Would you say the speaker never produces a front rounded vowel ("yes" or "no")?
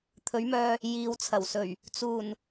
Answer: no